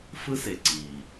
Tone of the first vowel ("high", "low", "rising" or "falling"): high